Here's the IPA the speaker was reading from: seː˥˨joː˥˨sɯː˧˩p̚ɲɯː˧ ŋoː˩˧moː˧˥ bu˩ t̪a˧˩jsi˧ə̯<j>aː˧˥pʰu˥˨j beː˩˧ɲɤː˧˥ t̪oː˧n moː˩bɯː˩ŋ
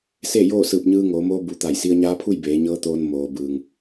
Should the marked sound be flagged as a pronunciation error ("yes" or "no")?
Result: yes